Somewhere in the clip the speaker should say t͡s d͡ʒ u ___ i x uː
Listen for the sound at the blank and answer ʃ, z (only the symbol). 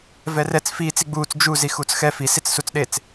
z